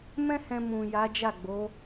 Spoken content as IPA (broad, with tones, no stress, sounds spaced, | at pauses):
m ɛ̃˦ h ɛ̃˧ m ũ˨ j a˨˦ d͡ʒ a˦˨ ɡ͡b o˨˦